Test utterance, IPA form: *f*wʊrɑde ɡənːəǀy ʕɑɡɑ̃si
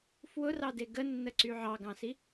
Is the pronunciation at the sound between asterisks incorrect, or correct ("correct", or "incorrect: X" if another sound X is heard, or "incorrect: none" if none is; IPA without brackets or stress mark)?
correct